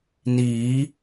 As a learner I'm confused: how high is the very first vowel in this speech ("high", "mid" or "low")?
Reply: high